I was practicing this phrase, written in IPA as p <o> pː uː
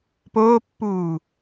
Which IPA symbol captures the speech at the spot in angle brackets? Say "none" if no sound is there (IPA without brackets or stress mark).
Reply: oː